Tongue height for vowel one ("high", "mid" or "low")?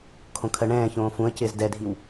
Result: mid